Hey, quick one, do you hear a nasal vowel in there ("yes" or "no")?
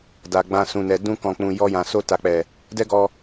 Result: yes